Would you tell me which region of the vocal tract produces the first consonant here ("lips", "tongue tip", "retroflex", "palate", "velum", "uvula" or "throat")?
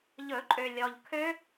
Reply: palate